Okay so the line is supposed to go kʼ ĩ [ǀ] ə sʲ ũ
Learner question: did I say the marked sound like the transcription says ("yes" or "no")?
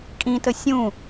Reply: no